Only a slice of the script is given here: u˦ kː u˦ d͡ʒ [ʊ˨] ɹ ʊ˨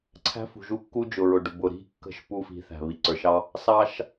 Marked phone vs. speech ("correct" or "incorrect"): correct